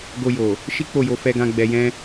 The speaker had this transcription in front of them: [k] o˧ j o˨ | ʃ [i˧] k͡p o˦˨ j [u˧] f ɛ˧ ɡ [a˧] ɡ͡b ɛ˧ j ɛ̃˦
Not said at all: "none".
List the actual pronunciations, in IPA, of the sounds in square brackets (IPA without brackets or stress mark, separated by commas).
ɡ, i˦, o˧, ã˧